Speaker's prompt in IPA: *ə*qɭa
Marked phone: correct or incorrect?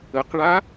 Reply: correct